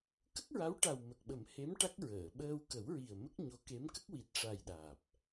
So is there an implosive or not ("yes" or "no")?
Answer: yes